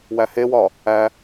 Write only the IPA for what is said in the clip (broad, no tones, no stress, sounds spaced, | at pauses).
w æ h e w ɒ | æ